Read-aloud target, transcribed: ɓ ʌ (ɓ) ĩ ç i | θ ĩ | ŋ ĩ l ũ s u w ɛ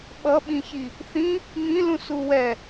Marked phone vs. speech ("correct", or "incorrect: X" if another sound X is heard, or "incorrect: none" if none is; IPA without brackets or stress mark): correct